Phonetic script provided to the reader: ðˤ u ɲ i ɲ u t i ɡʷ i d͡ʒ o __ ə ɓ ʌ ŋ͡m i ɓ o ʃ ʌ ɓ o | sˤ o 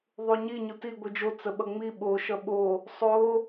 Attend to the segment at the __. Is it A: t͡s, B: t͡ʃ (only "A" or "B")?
A